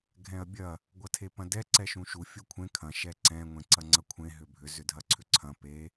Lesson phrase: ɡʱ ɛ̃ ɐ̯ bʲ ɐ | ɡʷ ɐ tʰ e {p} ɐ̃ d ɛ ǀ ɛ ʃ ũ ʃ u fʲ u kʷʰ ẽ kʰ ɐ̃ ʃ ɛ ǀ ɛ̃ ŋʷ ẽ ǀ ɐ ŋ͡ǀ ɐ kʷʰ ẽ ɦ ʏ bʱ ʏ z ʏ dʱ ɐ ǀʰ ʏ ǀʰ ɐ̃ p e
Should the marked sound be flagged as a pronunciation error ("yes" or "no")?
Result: no